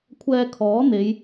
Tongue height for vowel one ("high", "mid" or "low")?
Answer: mid